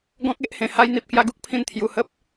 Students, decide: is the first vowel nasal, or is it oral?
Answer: nasal